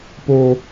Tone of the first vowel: low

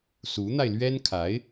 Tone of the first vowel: rising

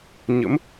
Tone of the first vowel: rising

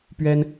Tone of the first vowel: high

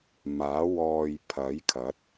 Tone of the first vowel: rising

